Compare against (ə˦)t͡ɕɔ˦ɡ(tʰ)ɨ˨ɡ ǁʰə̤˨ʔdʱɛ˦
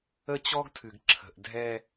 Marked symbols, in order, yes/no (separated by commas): yes, yes